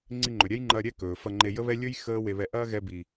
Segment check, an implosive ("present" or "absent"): absent